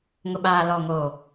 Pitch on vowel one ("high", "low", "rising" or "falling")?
low